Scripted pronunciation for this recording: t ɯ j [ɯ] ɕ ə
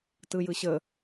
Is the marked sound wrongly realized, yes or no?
no